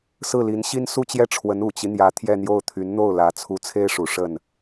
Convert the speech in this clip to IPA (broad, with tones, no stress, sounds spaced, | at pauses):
s ɹ̩˥˩ l i˧˥ n ɕ i˥ n s u˥˧ t͡ɕ j ɛ˥˩ ʈ͡ʂʰ w ə˧˥ n u˨˩ t͡ɕ i˦ n̪ j ä˧˥ t̪ʰ j ɛ˥˧ n̪ j o˥˩ ʊ̯ t̪ʰ y˧˥ n n̪ o˥˩ ʊ̯ l ä˧˥ t͡sʰ u˧˥ t͡sʰ e˥ ɪ̯ ʂ u˨˩ ʂ ə˥˩ n